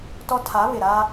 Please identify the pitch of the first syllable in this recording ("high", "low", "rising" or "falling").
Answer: high